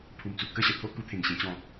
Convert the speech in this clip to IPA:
pʰ u˨˩ m t͡s u˨ p̚ k ə˥˧ ɕ ə˨˩ t̪ʰ o˦ ʔ k u˧ t̪ʰ ẽ˨˩ ŋ ɕ ẽ˧ t͡ɕ ɔ̃˧

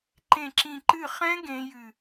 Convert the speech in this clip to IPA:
ǃ ẽ˦˨ ǁ ĩ˦˨ ǃ ɨ˦˨ χ ɛ̃˦˥ ɡ ẽ˦˥ j ɨ˦˨

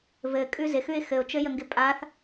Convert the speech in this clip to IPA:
v ɘ kʼ ʉ z ɪ x ʉ ɪ̯ x ɘ ʊ̯ t͡ʃ ɘ j ə ŋ ɡ ɪ pʼ a θ

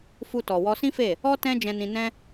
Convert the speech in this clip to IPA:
f u˧ t ɔ˨ w ɔ˧ s ĩ˦ f e˦˨ | ɔ˦ t ɛ̃˦ d͡ʒ ɛ̃˧ n ĩ˧ n ɛ̃˦

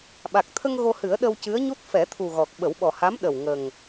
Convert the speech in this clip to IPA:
ɓ a˨˩ k̚ t̪ʰ ə˧ ŋ ɣ o˧ h ɨ˨˩˦ ə̯ ɗ ə˧ w c ɨ˧˥ ə̯ ɲ u˦˥ t̚ f ɛ˨˩˦ t̪ʰ u˨˩ ɣ ɔ˨˩ k̚ ɓ ə˨˩˦ w ɓ ɔ˨˩ h a˧˥ m ɗ ə˨˩ w ŋ ə˨˩ ŋ

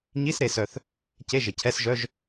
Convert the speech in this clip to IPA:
ɲ i˧˥˧ s ɾ e˨˩ s œ˨˩ θ | c e˧˥˧ ʒ ɪ˨˩ cʰ ɛ˧˥˧ s ʒ œ˧˥˧ ʒ

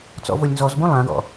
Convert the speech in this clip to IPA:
t͡s ɔ̰ v o lʲ n z ɔ z b ũ lˠ ã ɡ ɔ̰

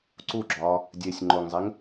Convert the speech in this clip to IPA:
ǀ u ɡ͡ǁ ɒː | dʲ e sʲ ŋ͡ǃ o ŋ zˤ e ŋ

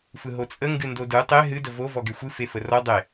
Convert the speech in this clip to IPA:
f ɯ ɦ o t͡sʼ ə ŋ ɡ ɨ n d o d ɯ tˤ e ɦ ɨ d ə v o v ɔ ɡ e xʷ ɨ f e f ə r ɔ dˤ e

